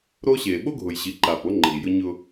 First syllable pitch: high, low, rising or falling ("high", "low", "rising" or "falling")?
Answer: high